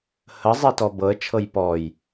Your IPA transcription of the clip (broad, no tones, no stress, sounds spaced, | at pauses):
h ə zˤ i t ɔ b ɤ ə̯ t͡ʃʰ ɤ j p ɔ j